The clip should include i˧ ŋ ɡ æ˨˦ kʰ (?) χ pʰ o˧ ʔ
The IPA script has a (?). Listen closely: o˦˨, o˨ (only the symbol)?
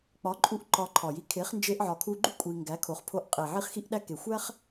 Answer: o˨